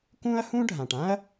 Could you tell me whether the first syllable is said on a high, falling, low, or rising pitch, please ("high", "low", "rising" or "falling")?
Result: high